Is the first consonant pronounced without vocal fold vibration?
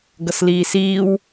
no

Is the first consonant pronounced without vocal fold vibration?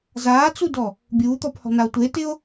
no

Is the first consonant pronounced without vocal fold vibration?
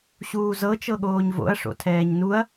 yes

